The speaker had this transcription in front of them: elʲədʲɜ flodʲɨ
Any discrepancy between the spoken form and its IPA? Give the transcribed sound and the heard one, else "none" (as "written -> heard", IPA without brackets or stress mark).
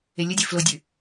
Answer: none